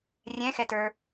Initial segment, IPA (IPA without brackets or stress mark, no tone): rʲ